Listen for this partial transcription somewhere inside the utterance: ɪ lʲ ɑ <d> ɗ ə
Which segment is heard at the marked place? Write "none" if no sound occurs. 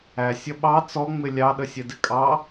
none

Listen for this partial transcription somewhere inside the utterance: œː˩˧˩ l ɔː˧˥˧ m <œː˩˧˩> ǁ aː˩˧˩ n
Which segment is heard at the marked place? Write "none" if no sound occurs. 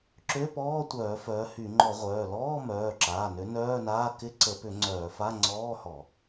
œː˩˧˩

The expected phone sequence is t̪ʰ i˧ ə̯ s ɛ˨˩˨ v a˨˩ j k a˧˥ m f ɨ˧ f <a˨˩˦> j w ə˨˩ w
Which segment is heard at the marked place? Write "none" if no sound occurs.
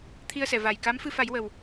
a˨˩˦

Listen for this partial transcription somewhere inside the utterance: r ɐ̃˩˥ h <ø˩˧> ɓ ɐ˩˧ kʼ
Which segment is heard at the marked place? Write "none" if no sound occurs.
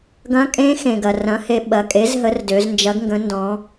e˩˧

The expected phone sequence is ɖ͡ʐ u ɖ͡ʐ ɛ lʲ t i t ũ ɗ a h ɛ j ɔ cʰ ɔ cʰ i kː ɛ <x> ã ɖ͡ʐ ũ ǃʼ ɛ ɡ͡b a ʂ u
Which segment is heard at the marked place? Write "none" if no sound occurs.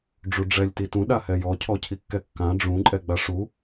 kː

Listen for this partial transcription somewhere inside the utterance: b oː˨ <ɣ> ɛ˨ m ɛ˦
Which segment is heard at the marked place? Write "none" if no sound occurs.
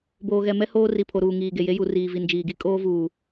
ɣ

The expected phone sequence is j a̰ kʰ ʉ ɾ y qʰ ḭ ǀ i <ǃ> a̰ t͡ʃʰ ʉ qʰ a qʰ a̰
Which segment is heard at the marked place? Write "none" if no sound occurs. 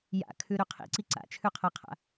ǀ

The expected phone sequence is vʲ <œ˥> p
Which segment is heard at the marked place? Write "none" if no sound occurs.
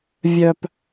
œ˥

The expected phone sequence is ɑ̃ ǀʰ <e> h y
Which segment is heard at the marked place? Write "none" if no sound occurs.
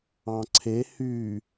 e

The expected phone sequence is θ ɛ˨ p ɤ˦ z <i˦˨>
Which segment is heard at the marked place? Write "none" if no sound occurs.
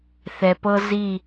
i˦˨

